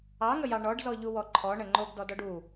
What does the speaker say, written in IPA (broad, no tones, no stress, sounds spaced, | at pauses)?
ɑ ŋ ə j ɑ ɳ ɔ ɖ z ɔ ʎ u w ɔ ǃʰ ɔ ɳ ə ŋ͡ǃ o ɡ d ɔ d ɔ ɖ u